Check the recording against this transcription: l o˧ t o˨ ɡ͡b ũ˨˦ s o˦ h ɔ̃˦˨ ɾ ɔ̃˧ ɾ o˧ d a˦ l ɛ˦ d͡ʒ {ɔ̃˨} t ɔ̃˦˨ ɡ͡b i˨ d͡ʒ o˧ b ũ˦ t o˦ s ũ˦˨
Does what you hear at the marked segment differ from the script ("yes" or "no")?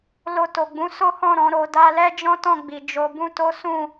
yes